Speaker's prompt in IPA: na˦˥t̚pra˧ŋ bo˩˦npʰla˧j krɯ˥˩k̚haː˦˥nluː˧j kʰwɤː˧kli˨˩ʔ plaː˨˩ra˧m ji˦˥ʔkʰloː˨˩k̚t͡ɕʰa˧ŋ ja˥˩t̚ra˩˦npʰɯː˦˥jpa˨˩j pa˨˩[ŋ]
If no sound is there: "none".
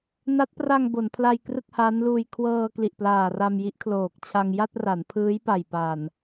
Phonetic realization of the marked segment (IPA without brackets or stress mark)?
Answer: n